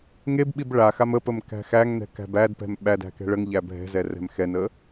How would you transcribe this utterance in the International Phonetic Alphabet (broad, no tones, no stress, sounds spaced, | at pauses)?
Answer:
ŋ e b ɓ i b ɭ a x a m ə p ə m k æ̤ x æ ŋ n ɛ̤ k æ̤ b æ d p ɛ̤ m ɓ æ d æ̤ k ɛ̤ ɭ ə ŋ ʎ æ bʱ ɛ̤ z ɛ r ɛ̤ m x ɛ n ə